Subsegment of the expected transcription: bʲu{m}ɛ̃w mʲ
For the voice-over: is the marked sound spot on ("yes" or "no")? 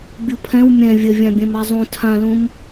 no